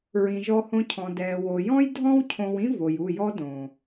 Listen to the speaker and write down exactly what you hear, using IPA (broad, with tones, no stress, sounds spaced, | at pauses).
ɹ ĩ˨ ʒ ɔ˧ h õ˧ cʰ ɔ̃˨ d ɛː˨ w o˨ j ɔ̃˦ j dʱ ɔ̃˦ w cʰ õ˧ w ĩ˦ v o˨ j u˦˨ j ɔ˦ d õː˨